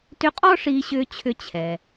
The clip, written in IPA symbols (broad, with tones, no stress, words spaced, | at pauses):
tʏ˧˥qʼɔ˥ ʂiː˧ɕʏː˧t͡ɕʰʏ˧ t͡ɕʰɛː˩